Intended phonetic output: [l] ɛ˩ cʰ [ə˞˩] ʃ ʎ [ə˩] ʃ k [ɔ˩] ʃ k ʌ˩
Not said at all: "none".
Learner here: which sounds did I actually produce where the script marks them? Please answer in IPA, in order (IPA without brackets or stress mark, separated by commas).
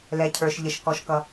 l, ə˞˩, ə˩, ɔ˩